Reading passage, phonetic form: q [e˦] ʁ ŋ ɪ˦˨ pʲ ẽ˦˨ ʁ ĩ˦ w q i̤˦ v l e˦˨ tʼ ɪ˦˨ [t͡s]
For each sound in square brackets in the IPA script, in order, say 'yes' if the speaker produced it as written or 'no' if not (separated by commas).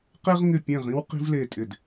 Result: yes, no